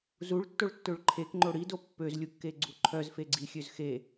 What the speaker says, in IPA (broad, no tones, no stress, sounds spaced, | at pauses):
z u ɭ tː o ɭ tː ø ɭ ǃʰ e k ŋ͡ǃ o ɽ i d o pː ø z lʲ u kː e ɡ͡ǀ u ǃʰ œ z f e ɡ͡ǀ i xʲ ø z x e